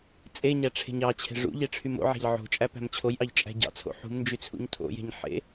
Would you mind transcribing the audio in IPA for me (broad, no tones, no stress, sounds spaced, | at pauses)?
t͡sʼ e ɲ æ ʈ͡ʂʰ e̤ ɲ ɑ t͡ɕʰ e̤ ʐ ṵ ʎ e ʈ͡ʂʰ y m o̰ ʕ æ̤ ʎ ʕ o̤ t͡ʃʼ æ p æ̤ m t͡ɕʰ o j ʔ ɑ ʎ t͡ʃʼ æ̤ ɟ ɑ̰ t͡sʰ o̰ ħ ṳ m n d͡ʒ y t͡sʰ ṵ ɲ tʰ o̰ j e̤ ɲ ħ ḛ